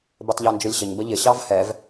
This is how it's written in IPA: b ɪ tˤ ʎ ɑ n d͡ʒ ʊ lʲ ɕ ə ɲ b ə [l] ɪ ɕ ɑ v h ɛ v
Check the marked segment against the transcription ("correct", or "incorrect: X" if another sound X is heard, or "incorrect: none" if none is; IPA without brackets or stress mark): incorrect: ʎ